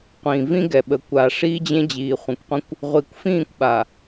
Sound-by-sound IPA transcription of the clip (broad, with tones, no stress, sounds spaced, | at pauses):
qʷ ĩː˨ v ĩ˦ ɡ ɛ˨ ɓ ə˨ kʷ a˨ ʂ iː˦ d͡ʑ ẽ˦ d͡ʑ iː˨ χʷ ẽ˨ kʷ qʷ ẽ˦ kʷ | ʁʷ i˨ kʷ f ĩː˦˨ kʷ ɓ a˨